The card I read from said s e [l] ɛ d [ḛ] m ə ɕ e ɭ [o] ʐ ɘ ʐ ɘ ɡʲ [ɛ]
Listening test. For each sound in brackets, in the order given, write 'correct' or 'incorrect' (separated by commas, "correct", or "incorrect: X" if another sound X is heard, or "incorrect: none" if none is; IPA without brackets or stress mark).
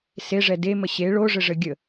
incorrect: ʐ, incorrect: e, correct, incorrect: ə